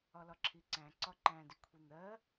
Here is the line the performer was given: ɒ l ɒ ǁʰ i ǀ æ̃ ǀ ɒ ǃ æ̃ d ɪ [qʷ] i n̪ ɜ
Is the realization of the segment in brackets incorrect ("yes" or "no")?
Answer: yes